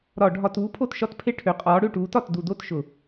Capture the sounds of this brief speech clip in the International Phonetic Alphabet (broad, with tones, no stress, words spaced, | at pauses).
ɾɒ˧˩˧ɖʱɒ˧˩˧t uː˨˥pʰo˦˨tʃɒ˦˨tpʰe˦˨ ʈʰø˨˥ qʼɒː˨˥ɽø˦˨ʈuː˨˥tɒ˦˨t du˧˩˧do˦˨t ʃʊ˧˩˧